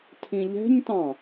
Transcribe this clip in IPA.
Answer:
tʰ ĩ ʎ ɛ̤ ɲ t ɑ̃

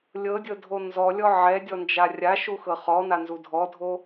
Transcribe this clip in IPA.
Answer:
lʲ ɤ dʲ ɤ dʱ o n z ɔ lʲ ɔ ʕ ɛ dʲ ɔ n d͡ʒ a rʲ a ʃ u x ɤ χ ɔ n a n z u dʱ ɔ dʱ o

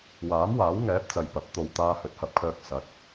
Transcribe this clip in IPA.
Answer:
w aː˨˥ m w aː˨˥ w ŋ ɛː˨˥ p̚ t͡s ɐ˨ j p ɐ˨˥ p̚ t̪ o˨ w t̪ aː˧ h ɵ˨˥ t̚ h ɐ˨˥ p̚ kʰ œː˧ k̚ s ɐ˨˥ t̚

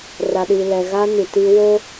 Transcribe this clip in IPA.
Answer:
r a˨ ɗ i˨ l ɛ˨ ɣ a˦ n i˨ t i˦ w o˦

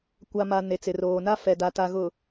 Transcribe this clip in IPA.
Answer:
kʷ a˨ m a˨ n e˨ t͡s ɪ˨ r oː˨ n a˦ f ɛ˨ d a˨ t a˨ ɣ ʊ˨

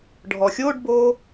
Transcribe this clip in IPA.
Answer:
ɖʱ ɔ xʲ o ɖ b o

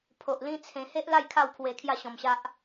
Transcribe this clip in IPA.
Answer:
pʰ o˨ ʔ l ĩ˦ t͡sʰ ẽ˧ h e˦ ʔ l a˥˧ j kʰ a˥˧ w pʰ w e˧ kʰ j a˥˧ ɕ ɔ̃˧ m ɕ a˦ ʔ

